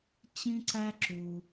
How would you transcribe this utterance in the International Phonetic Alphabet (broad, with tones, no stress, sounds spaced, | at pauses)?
t͡ɕ ĩ˦ ǀ æ˦ ǁ u˧